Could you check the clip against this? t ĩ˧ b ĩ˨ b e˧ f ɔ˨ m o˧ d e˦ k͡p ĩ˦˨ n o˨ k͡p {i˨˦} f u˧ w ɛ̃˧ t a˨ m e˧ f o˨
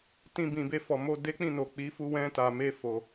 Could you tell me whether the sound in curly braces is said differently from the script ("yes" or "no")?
no